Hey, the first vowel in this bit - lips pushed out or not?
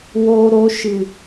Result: yes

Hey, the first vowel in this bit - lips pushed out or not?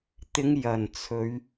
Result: no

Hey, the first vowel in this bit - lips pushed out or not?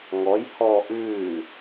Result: yes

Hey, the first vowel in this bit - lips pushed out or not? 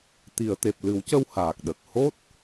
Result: no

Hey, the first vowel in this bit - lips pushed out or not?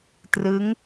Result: no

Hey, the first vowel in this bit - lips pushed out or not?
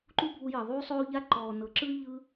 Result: yes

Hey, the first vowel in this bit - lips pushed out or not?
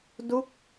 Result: yes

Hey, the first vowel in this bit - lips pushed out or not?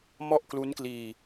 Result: yes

